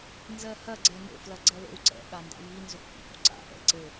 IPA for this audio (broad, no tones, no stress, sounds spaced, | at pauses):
n z ɜ h ɐ ɡ͡ǀ ɛ n o̰ f l ɐ ɡ͡ǀ ɜ l o̰ u̯ ǀ ɛ̰ ɠ a n d a̰ j i n z ø k f ṵ h ṵ ǀ a̰ ʔ ɛ̰ ǀ ɘ